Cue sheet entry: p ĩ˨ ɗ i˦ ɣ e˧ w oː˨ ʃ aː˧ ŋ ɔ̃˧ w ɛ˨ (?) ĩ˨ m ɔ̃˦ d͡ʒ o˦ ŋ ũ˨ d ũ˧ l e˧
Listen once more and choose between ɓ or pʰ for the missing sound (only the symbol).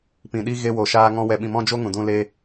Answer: ɓ